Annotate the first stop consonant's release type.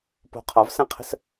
plain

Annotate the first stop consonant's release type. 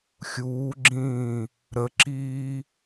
click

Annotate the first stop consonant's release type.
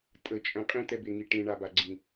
ejective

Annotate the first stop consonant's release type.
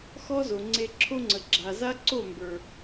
click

